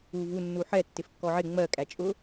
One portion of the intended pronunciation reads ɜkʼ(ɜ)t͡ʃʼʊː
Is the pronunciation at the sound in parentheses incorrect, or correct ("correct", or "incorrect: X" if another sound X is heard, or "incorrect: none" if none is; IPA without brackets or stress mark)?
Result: incorrect: æ